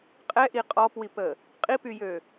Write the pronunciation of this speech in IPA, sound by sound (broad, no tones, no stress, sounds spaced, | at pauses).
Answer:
qʼ ɛ ʔ i qʼ ɔ p w i p ə | qʼ i p y j ø